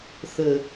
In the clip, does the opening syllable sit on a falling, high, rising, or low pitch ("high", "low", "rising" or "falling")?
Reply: low